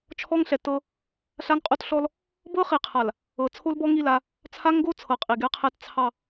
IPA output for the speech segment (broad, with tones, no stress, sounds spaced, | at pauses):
t͡ʃʰ ɔ˦ ŋ ɬ ɛ˨ t ɤ˦ | ɬ a˦ ŋ qʼ o˦ t ɬ ɔ˦ l | b ɤ˦ χ i˨ qʰ a˨ l | ɤ˨ t͡sʰ o˦ l b ɔ˦ ŋ i˦˨ l a˦ | t͡sʰ a˦ ŋ ɡ o˦ t͡sʰ ɤ˨ qʼ i˨ ɡ ɛ˦ qʰ ɛ˦ t t͡sʰ ɑ˦˨